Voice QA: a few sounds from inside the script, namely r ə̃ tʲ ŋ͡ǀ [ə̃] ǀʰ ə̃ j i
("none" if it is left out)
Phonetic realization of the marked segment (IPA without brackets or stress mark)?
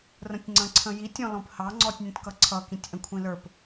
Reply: ə̃